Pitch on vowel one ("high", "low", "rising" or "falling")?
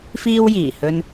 high